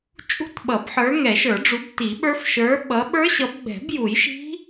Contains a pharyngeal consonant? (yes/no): yes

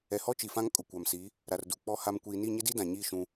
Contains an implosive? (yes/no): no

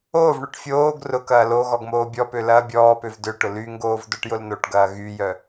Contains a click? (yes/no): no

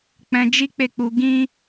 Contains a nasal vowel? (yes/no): yes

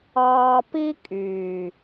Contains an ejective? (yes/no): yes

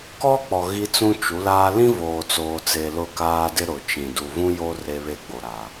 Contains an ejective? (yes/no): no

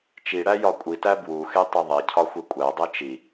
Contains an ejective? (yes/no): yes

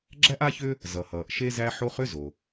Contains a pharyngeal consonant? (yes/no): yes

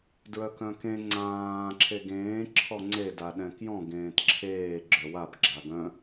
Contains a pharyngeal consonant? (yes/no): no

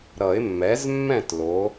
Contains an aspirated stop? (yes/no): no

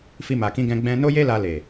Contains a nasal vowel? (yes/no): yes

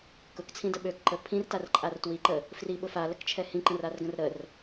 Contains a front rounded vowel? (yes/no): yes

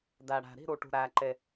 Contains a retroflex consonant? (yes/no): yes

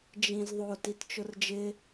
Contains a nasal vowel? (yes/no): yes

